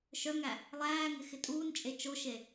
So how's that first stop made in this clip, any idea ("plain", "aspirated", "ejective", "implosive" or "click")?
ejective